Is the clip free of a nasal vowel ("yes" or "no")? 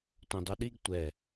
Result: no